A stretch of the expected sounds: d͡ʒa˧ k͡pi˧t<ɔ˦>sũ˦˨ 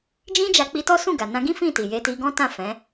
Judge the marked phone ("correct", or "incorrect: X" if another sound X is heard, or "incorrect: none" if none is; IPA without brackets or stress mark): correct